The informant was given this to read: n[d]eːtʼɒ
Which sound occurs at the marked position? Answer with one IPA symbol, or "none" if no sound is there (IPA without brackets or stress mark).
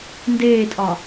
d